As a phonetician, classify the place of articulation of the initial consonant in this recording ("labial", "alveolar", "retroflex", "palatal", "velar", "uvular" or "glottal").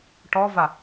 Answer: retroflex